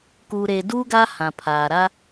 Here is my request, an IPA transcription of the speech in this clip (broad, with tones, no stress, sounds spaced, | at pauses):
k uː˨ ɾ eː˨ d uː˦ ɡ a˦ h ã˨ pʰ aː˨ ɾ a˦